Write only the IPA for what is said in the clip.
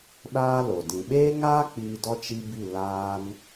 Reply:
ɗaː˦lo˨ dĩ˨ɓeː˦ŋaː˦ k͡piː˧dɔ˦ t͡ʃi˧ bi˦˨ laː˦n

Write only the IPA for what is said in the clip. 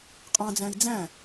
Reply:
qʼɑ̃d͡zæ̃i̯ d͡zæ̃

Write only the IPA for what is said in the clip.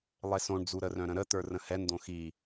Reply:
lˠesõɳd͡zuɾə rœ̃ɾə̃ɾə t̪ə˞rə̃hɛnd̪õ xi

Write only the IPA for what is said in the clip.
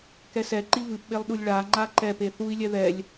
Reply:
kɛsɛ ǃivɨpɓelˠɗulʲ ɭa ŋ͡ǃaǃɛ peθui̯lʲɛ ðɛlʲ

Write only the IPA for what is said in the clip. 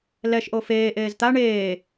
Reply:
lɛʃ ʔofeː ʔeːzt̪a ɳeː

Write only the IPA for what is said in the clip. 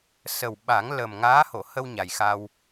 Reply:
sə˨˩wɓa˨˩˦ŋ lə˨˩m ŋaː˧˥ho˨˩˨hə˧w ɲa˨˩jxa˧w

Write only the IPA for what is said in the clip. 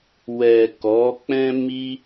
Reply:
wɛ˨ kɔ˨˦k͡pɛ̃˦ mi˦

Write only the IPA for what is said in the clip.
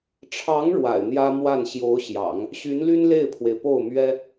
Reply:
ʈ͡ʂʰɑ˧˥ŋ ɻwa̰˨˩ɪ̯n̪jä˥mwa˥˩n ɕjo˧˥ʊ̯ɕjɑ̰˨˩˦ŋ | ɕy˧˥nly˥n le˥˩ɪ̯pʰwe˩ɪ̯po˥˩ʊ̯mɥɛ˥

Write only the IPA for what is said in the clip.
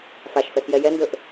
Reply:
faʃfɛxjɛ jɛndɵʔ

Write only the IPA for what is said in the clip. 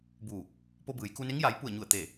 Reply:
buː˧˩k̚ | po˧bɯː˩˧jku˧ne˧˥ŋ ja˩˧jpu˧˩ə̯ɲu˧˩ə̯t̪e˧˩

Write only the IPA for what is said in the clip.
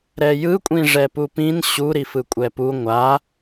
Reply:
ɾɛjɯ kʷʼĩʐɛpupĩn ɕu ɾifɯkʷʼɛpu ŋʷa

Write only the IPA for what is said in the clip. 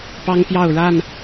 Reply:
pɑ˦ŋpjɑ˥˨ʊ̯ɻa˥˨n

